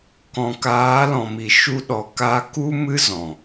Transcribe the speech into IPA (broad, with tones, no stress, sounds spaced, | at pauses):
k ɔ̃˨ k aː˨˦ l ɔ̃˨ m i˨ ʃ u˧ ɗ ɔ˨ k a˧ k u˦ m ɨ˦ z ɔ̃˨